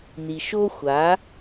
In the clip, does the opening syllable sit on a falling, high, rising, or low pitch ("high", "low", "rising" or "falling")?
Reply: low